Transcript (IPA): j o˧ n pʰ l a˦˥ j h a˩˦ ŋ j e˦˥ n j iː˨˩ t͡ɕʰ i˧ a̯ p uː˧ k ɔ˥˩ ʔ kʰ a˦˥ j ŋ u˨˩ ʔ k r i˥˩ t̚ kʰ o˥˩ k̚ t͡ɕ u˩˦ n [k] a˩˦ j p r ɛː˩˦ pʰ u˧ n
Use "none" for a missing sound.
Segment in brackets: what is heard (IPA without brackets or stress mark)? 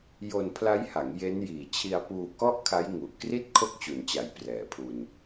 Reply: t͡ɕ